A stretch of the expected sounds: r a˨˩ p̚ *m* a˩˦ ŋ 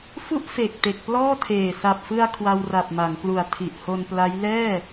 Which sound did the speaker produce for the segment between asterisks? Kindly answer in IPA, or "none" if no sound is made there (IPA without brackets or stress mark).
m